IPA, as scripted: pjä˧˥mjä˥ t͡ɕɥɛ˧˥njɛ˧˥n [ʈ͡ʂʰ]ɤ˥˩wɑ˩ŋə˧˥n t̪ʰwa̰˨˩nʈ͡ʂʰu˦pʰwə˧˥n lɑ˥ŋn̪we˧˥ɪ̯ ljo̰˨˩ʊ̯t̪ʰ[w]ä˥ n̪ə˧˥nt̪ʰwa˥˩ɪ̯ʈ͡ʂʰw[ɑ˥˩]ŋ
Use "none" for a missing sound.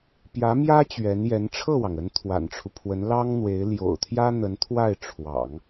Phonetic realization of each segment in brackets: ʈ͡ʂʰ, j, ɑ̰˨˩˦

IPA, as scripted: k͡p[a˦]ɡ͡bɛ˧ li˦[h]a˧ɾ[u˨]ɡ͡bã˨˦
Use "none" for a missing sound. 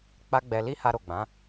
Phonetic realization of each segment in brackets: a˦, h, o˨

